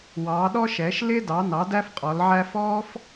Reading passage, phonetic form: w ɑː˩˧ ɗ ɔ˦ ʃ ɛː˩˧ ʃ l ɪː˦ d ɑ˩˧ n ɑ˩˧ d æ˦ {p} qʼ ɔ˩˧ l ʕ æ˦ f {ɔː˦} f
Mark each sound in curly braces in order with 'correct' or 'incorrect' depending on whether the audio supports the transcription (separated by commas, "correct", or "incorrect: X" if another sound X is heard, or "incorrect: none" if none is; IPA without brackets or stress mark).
incorrect: f, correct